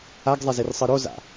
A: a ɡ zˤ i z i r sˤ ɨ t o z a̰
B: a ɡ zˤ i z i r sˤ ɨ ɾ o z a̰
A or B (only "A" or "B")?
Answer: B